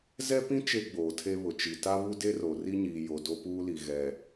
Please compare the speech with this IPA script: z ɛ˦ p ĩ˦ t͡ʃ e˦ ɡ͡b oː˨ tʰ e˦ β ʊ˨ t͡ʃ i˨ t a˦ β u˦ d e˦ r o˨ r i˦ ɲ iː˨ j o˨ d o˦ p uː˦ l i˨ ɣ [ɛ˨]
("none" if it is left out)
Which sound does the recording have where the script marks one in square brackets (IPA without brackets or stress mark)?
ɛ˨